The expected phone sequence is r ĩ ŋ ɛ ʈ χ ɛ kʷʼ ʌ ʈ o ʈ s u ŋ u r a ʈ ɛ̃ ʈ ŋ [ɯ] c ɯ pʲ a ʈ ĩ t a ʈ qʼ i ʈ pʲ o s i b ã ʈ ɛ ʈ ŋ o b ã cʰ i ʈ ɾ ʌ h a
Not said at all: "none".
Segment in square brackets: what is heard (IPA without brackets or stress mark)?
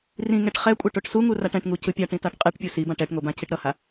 u